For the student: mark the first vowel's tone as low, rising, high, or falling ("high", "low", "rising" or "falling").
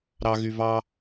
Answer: high